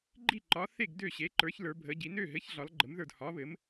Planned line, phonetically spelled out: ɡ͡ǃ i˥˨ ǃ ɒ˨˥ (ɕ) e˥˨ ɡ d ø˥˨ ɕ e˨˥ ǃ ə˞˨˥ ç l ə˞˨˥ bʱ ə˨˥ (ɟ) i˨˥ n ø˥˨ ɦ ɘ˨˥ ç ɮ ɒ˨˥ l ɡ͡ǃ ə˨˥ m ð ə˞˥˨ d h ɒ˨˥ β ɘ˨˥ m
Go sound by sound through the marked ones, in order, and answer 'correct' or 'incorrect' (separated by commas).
incorrect, correct